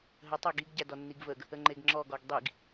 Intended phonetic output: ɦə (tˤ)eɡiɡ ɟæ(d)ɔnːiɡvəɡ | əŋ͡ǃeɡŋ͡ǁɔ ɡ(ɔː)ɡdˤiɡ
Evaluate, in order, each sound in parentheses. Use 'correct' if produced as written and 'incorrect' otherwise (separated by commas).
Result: correct, correct, incorrect